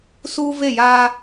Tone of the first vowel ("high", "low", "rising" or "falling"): high